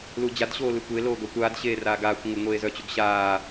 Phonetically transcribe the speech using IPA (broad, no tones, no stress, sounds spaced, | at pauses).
l u d͡ʑ a d ɕ oː l ɯ kʷ e l oː ɡ œ kʷ aː d ɕ eː r aː ɡ aː kʷ ŋʷ ə ɡ ŋʷ eː z œ t͡ɕ u ɡ ɕ aː